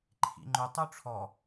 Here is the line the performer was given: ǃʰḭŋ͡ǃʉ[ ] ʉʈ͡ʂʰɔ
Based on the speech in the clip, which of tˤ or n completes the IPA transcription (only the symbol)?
tˤ